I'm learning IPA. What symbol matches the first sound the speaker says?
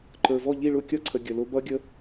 ǃ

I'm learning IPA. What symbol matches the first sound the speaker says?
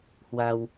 h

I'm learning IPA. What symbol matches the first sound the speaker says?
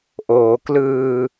ʔ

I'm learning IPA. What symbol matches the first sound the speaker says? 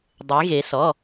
dˤ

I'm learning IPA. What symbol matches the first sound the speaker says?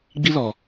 ɡ͡b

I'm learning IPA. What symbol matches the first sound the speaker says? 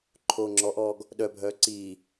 ǃʰ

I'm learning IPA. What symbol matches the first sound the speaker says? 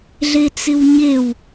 ɮ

